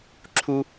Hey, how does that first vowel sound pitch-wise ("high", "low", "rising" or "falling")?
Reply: high